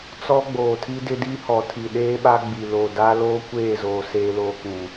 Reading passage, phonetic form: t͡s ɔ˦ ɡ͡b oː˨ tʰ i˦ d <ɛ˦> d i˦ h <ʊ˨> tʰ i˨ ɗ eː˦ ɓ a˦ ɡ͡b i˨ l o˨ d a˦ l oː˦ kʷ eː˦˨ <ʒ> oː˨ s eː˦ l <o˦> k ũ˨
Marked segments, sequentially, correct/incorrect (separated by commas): incorrect, incorrect, incorrect, correct